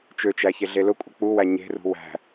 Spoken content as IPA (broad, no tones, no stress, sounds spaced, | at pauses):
t͡ʃ ø t͡ʃ æ ç e ɮ e l ʊ kʷʼ ə k͡p u w æ ɲ e̤ r ṳ w æ̤